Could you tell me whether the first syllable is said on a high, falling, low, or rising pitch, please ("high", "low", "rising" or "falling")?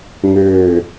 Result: falling